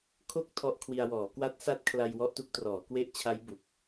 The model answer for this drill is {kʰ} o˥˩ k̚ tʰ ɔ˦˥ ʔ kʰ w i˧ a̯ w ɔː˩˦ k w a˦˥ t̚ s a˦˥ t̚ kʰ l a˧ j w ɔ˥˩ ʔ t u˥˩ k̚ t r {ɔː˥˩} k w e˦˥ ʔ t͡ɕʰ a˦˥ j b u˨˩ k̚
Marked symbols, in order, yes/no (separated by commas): yes, no